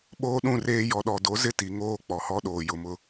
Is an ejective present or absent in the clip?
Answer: absent